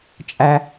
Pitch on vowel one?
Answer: high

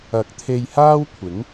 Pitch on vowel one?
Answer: rising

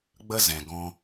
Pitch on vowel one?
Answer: high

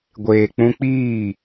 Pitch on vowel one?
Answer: low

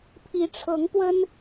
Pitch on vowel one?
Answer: rising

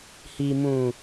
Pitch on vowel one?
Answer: low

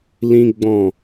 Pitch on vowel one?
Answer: high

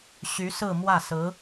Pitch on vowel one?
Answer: rising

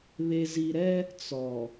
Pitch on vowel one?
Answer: low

